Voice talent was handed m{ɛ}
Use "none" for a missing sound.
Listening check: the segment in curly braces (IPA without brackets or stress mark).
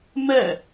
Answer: ɛ